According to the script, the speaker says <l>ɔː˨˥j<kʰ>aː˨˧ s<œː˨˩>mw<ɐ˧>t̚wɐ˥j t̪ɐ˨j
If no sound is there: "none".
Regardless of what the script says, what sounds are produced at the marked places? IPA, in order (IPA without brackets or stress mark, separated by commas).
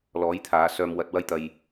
l, t̪ʰ, œː˧, ɐ˧